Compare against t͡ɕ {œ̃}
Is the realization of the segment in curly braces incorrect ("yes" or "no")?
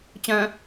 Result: no